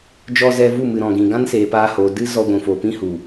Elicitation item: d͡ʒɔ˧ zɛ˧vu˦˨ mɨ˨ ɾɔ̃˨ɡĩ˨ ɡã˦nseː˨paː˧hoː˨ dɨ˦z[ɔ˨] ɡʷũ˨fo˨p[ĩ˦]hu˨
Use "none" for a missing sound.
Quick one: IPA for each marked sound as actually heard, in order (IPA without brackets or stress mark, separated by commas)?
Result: ɔ˧, ĩ˦